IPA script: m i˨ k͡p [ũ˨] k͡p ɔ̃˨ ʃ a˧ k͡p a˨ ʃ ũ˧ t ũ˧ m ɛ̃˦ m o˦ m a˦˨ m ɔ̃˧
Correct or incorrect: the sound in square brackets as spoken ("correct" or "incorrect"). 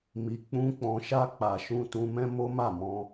incorrect